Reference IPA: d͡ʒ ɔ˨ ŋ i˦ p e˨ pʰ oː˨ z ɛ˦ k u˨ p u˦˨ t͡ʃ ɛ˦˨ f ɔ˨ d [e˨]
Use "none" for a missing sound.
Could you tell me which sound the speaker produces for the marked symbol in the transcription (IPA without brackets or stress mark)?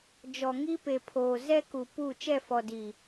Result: i˨